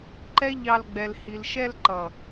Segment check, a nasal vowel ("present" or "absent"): absent